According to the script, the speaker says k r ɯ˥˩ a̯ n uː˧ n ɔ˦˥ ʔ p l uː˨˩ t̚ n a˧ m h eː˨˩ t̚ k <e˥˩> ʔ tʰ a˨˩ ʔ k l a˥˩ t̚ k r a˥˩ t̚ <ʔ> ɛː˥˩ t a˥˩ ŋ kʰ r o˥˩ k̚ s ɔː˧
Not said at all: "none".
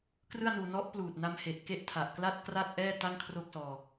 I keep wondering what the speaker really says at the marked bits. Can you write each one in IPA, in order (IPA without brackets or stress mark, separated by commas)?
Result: e˥˩, ʔ